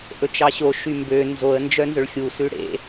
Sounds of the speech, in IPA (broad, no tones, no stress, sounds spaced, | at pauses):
ʔ ɵ t͡ʃ ɑ ɕ o ʃ y m b ø n z o ə̯ n d͡ʒ œ n z ɵ ɭ xʲ u s ʉ ɽ ḛ